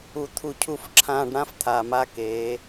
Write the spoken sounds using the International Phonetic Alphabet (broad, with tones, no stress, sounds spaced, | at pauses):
u˨ t̪ʰ u˨ cʰ u˨ f ǁʰ ãː˨ ɖ ɽ ã˦ f t̪ʰ aː˨ m a˦ k eː˨˦